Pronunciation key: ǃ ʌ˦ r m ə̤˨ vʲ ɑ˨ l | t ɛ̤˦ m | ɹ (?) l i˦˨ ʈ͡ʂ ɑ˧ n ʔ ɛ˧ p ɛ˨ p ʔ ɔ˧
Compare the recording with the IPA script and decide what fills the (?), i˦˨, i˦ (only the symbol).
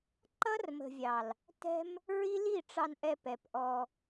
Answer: i˦